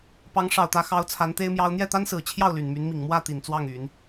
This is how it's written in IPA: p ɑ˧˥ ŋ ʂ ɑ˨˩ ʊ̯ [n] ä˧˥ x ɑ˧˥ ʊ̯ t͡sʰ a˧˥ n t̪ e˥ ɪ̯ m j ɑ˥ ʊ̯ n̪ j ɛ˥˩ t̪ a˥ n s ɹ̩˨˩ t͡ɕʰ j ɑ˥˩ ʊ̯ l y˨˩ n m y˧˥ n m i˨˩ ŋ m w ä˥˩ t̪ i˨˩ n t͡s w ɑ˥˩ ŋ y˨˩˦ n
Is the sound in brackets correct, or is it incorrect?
incorrect